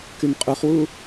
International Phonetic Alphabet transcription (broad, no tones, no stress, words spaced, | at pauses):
kymqʼuχwu